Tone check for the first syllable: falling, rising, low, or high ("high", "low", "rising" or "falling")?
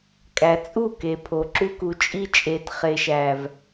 low